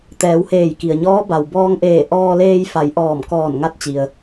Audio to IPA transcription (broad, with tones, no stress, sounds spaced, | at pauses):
t̪ ɛː˩˧ w h eː˧˩ j k i˩ ə̯ ɲ ɔː˧˥ b a˩ w b ɔː˧ ŋ ʔ eː˧˩ ʔ ɔː˧ l eː˧ j f a˩˧ j ʔ ɔː˧˩ m k ɔː˧˩ n ŋ a˧ t̚ t͡ɕ i˩ ə̯